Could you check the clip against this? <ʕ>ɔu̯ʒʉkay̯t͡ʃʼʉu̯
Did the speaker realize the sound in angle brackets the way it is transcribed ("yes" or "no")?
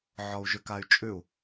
yes